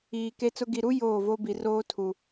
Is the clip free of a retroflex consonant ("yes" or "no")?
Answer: yes